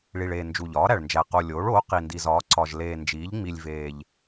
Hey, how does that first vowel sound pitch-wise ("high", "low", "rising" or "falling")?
low